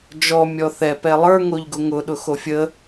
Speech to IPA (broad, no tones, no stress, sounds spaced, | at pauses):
d͡ʒ ɔ mʲ ɔ θ ɛ p ɛ lˠ ə˞ ŋ o ʎ ɡ ʊ ŋ ʊ ɗ ʊ x o fʲ ə